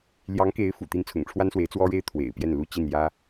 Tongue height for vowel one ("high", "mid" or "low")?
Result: low